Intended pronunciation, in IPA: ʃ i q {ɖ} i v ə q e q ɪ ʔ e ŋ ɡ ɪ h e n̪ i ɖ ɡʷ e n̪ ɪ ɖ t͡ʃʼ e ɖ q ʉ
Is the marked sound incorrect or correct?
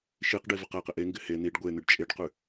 correct